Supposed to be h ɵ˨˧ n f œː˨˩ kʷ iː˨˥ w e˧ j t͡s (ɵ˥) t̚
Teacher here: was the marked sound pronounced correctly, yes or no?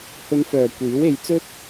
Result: yes